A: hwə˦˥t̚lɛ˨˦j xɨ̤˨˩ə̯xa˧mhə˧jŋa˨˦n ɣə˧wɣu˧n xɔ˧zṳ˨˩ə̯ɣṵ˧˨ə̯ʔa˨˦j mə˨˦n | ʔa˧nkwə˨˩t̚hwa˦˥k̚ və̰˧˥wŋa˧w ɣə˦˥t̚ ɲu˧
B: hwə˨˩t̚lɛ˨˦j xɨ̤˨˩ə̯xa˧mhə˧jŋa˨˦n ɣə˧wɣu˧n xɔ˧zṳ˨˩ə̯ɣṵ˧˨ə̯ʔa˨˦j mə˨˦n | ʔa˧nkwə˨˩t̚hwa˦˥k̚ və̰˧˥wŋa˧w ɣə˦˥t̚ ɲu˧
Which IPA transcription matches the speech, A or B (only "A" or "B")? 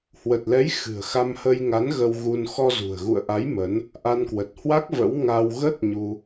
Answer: B